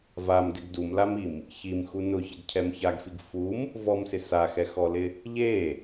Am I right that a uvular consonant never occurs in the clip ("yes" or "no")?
yes